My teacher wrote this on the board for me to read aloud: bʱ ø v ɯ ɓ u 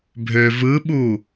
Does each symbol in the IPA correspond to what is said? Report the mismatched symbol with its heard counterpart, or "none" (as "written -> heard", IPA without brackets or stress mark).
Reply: none